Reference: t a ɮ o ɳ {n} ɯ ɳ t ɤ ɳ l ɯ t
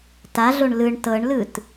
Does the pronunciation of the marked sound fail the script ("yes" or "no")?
yes